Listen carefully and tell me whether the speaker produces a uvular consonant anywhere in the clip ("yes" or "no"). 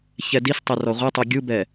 yes